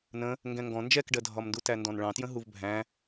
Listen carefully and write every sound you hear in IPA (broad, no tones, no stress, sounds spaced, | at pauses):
n ə̃ | ŋ ɡ ɛ̃ ŋ ɡ ɔ̃ n d͡ʒ ɛ k ɖ ɜ dʱ ɒ m n d u t æ n d ɔ̃ n ɭ ɑ̃ t j ə̃ ɦ u v bʱ æ̃